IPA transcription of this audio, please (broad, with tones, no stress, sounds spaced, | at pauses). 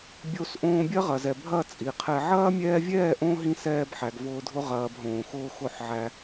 bʲ o˧ s ʔ õː˧ bʲ ɐ˦ ʁ ɐ˨ z ɛ˨ bʱ ɐ˦˨ t͡sʼ i˨ qʰ ɛ˧ ʕ ɐː˦ mʲ ɛː˧ vʲ ɛː˦˨ ʔ õ˧ ɦ ĩ˦ s ɛː˧ b ħ æ˨ ɡ v ʊː˧ dʱ ʊ˧ ʁ ɐː˧ b ɦ õː˨ x ʊː˦ x ʊ˦˨ ħ ʕ æ˧